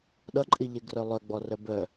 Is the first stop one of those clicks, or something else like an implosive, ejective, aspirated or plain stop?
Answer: implosive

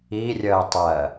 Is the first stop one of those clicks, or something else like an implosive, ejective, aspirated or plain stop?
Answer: plain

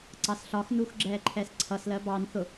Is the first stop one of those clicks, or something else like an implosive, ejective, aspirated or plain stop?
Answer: click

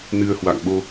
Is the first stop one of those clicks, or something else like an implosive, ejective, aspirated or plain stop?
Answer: implosive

